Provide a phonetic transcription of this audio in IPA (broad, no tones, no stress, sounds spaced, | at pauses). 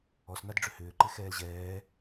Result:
ɔ s n a d ɖ͡ʐ ʏ h ʏː ǃ ɪ x ɛː l ʑ ɛː